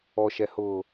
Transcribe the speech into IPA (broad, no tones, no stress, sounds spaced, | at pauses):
ɔ ʃ ɛ h ʊː